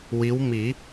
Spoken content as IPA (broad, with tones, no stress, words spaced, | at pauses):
wi˧˥wmi˨˩˦